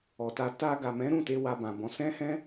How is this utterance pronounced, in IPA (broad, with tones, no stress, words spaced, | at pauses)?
ɔ˨ta˧ ta˧ɡa˨mɛ̃˨˦ ɾũ˦˨ te˧wa˧bã˨bɔ̃˨˦ sɛ̃˦hɛ̃˦